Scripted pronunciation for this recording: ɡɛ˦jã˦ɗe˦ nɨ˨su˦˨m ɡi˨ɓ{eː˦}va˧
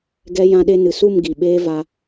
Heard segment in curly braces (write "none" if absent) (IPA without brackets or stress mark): eː˦